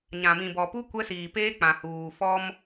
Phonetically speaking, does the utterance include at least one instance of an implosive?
no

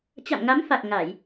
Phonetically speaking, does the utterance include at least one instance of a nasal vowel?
no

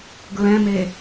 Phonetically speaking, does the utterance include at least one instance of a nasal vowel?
yes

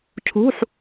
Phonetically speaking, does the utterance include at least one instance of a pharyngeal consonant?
yes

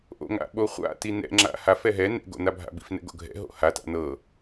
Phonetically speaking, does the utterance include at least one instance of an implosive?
yes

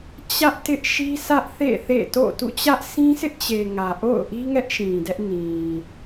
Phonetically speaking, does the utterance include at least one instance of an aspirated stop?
no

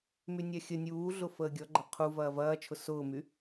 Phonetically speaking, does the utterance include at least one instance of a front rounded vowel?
yes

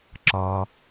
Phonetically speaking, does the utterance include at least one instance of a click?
yes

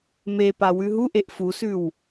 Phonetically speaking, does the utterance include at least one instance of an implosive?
no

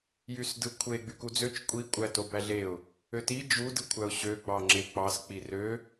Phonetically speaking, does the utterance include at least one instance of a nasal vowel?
no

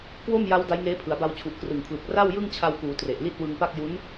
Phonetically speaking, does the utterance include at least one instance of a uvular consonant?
no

